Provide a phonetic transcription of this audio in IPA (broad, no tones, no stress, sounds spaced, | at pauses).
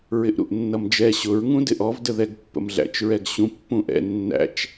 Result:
ɹ ɪ ʔ ɾ ṵ ʔ nː ʌ m d͡ʒ ɛ ɕ ʊ ɹ ŋ ũ d ɪ ʔ ɔ v d ə ð ɛ ɡ pː ə̰ m ɮ æ̰ t͡ʃ ɹ ɛ ɡ ɕ ũ pː ũ ʔ ɛ̰ nː æ̰ t͡ʃ